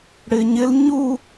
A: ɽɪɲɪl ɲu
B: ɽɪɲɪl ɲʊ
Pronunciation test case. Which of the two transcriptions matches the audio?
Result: A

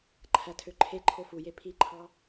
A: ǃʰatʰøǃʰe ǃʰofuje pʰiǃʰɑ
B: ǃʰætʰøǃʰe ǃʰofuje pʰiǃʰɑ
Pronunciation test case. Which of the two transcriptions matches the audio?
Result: B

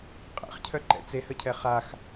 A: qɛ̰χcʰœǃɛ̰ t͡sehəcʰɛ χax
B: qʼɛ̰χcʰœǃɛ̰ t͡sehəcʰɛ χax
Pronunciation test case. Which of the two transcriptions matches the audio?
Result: B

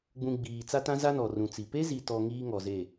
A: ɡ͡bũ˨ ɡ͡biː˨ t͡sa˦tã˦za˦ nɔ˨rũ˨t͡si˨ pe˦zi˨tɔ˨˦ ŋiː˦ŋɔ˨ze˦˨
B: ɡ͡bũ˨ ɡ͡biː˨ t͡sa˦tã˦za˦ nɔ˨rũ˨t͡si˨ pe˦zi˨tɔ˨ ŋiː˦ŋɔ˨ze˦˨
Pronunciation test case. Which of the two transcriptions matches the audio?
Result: B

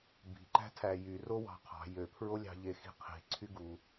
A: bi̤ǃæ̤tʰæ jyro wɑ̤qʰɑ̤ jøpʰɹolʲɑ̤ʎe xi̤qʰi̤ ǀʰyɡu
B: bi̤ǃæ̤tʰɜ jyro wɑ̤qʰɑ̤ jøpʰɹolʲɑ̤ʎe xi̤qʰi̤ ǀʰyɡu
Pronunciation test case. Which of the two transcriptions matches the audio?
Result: A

